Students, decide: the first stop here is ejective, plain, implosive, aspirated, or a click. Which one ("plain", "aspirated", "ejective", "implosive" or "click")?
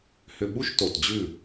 implosive